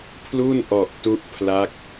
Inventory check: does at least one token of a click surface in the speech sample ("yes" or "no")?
no